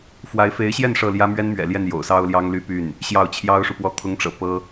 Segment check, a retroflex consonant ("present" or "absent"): present